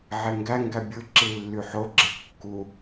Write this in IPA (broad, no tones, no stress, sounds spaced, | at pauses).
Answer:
ʕ e ŋ ɡ æ ŋ ɡ æ bʲ ɯ ǁ i lː y ħ o ɡ͡ǁ e kː u